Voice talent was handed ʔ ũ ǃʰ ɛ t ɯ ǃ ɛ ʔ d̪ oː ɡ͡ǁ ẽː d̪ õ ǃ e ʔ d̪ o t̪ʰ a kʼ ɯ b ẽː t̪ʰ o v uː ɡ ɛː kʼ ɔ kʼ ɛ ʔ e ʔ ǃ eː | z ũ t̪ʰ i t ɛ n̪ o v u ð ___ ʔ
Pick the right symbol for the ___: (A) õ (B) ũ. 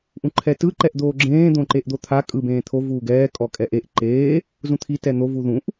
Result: B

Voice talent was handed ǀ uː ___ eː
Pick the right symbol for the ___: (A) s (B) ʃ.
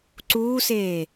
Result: A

